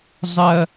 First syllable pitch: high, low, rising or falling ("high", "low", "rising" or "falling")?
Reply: low